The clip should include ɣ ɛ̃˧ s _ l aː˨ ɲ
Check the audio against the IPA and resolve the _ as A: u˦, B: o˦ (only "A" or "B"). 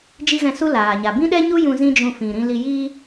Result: A